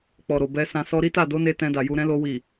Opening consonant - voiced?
no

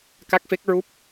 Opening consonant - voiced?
no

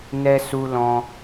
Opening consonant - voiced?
yes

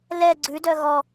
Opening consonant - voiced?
yes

